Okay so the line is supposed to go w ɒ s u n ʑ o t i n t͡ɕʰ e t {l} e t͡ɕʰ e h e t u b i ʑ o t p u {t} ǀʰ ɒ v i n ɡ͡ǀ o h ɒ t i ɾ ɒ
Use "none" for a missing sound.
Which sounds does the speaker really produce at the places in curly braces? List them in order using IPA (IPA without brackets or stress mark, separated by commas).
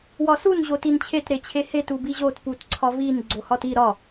ɾ, t